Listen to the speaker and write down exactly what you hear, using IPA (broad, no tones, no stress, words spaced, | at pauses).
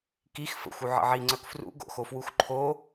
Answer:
kix fə̰xʷ uʕə̰ʕi ŋ͡ǀœkfrṵ ɡo̰xofwuxǃʰo